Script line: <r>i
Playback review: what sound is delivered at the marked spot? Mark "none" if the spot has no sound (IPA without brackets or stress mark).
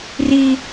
r